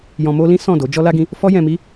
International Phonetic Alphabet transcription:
j ɔ̃˧ m o˦ l ĩ˦ s ɔ̃˦˨ d o˨˦ d͡ʒ ɔ˦ l a˦ ɡ ĩ˦ | f ɔ˦ j ɛ̃˧ m i˦

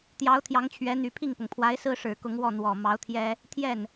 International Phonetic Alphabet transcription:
t̪ j ɑ˧˥ ʊ̯ t̪ʰ j ɑ˧˥ ŋ t͡ɕʰ ɥ ɛ˧˥ n̪ y˨˩ pʰ i˥˩ ŋ p ʊ˩ ŋ pʰ w a˧˥ ɪ̯ s ɹ̩˥ ʂ ɻ̩˨˩ k ʊ˧˥ ŋ w ɔ˥˩ n̪ w ɔ˨˩ m ɑ˧˥ ʊ̯ t̪ʰ j ɛ˥ | t̪ʰ j ɛ˥˩ n

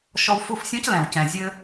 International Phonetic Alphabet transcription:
ʃ ɔ˧ w f u˦˨ f sʲ ɔ̃˦ c l ɛ̃˨ w c ɛ̃˨ zʲ ɘ˧

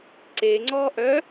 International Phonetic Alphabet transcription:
ǀ e ŋ͡ǀ ɔ ʔ œ

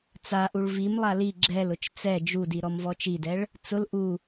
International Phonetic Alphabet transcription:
t͡s a ʔ u ɭ v i m lˠ a l i ɡ͡ǁ ɛ l ʊ t͡ʃ t͡s ɛ d͡ʒ u d i ɾ ɔ m v ɔ t͡ʃ i d ɛ ɭ | t͡s ʊ l ʔ u

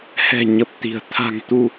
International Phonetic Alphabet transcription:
h ɛ̤˨˩ ɲ ə˨˩ p̚ t̪ i̤˨˩ ə̯ t̪ʰ a̤˨˩ ŋ t̪ u˧

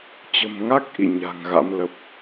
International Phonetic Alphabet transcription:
t͡ɕ ə̤˨˩ m ŋ a˦˥ k̚ ʔ ḭ˧˨ ɲ a̤ː˨˩ ŋ ɣ a̰˧˥ m l ə˦˥ p̚

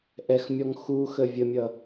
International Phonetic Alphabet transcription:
ʔ ɛ x mʲ ɔ ŋ x u x ə vʲ ə mʲ ʌ

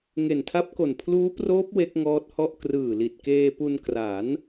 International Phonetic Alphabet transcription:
ŋ e˨˩ n tʰ a˦˥ p̚ k o˨˩ n pʰ l uː˦˥ p r oː˦˥ p̚ w e˦˥ k̚ ŋ ɔː˦˥ t̚ h ɔ˥˩ ʔ k r ɯː˨˩ l i˨˩ t̚ k eː˧ p u˧ n k r a˩˦ n

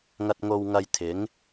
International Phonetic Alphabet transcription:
ŋ ɐ˧ t̚ ŋ o˧ w ŋ ɐ˧ j t̪ʰ ɪ˨˥ ŋ

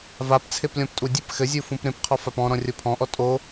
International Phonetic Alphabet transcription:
v a p t͡sʰ e p lʲ ɔ̃ p tʼ u dʲ ɨ p x ɘ zʲ u f ũ p ɾ ẽ p qʰ ɔ f a p ɔ̃ ɾ ɔ̃ rʲ o pʰ ɔ̃ ʔ ɔ tʼ o

